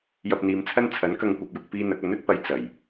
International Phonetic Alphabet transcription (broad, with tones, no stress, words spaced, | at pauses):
jɐ˧p̚n̪iː˨˧mt͡sʰɐ˥n t͡sʰɐ˨˥nkɐ˧ŋkʷɐ˨p̚jʊ˧k̚ piː˥n̪ɐ˨˥k̚ ɐ˨˥nɵ˥t̚pɐ˨˧j t͡sɐ˨˩j